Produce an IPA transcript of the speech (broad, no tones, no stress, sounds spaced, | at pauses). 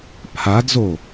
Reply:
pʰ a d z o